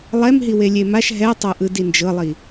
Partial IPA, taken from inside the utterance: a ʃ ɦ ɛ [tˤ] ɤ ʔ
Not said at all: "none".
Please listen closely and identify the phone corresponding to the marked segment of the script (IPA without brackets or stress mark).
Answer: tˤ